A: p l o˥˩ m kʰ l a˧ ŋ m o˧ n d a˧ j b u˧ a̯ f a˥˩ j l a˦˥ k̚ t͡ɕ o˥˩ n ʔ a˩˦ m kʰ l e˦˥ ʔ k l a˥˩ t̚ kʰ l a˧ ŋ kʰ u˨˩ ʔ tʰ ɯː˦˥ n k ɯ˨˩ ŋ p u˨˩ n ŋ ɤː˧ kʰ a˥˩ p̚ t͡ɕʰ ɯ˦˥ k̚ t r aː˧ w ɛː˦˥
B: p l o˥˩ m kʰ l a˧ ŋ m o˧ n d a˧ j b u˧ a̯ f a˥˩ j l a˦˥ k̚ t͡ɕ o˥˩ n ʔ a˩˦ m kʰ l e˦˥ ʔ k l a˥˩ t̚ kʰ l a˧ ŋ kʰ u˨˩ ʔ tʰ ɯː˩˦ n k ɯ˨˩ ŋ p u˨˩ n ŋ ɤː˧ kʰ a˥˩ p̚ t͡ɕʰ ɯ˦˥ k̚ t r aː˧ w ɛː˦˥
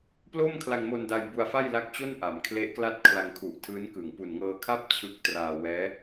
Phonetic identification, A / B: A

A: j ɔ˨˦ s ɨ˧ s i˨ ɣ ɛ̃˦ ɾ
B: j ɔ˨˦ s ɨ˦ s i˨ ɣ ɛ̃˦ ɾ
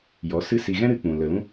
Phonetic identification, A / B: B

